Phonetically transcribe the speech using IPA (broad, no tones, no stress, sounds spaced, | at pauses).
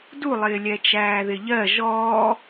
d u lˠ ɪː lʲ ɛ t͡ʃ æː ð ɪ ʎ ɜ ʒ ɔː